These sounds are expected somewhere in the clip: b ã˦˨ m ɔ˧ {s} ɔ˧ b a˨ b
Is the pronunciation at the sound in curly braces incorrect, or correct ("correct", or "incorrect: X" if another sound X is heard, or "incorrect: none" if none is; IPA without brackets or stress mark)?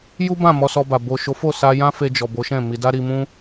correct